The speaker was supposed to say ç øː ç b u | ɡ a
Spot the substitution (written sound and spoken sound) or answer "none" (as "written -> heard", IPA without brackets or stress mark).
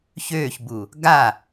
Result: none